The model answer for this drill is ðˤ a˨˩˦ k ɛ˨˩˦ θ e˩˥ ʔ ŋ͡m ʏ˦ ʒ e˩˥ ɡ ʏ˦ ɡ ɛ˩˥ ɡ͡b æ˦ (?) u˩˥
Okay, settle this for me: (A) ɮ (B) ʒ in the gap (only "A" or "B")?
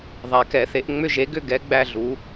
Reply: A